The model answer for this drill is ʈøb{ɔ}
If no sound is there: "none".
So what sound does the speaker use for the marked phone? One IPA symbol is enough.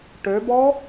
ɔ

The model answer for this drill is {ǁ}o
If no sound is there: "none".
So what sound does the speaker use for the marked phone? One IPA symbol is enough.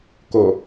k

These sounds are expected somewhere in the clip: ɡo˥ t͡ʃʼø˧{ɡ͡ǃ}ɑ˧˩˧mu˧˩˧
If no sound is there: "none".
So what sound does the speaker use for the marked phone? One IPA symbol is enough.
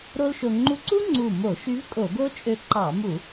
ǃ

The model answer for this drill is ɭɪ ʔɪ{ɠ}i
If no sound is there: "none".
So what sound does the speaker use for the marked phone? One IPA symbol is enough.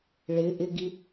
ɡ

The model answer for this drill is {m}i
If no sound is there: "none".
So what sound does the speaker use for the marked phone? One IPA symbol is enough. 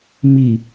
m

